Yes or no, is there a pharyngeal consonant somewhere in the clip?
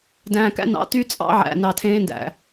yes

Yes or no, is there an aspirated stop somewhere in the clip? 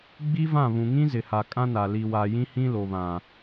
no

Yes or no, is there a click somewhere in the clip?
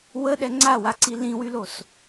yes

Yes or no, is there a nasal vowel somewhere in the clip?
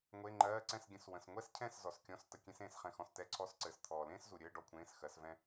yes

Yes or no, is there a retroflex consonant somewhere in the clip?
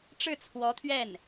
yes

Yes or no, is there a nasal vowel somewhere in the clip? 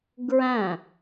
yes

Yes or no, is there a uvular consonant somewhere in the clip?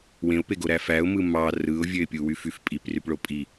no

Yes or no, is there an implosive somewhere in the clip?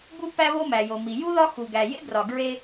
no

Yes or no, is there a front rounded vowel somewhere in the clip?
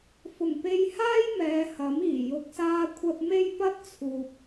no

